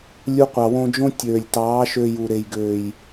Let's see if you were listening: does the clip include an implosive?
no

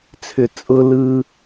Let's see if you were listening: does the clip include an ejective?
yes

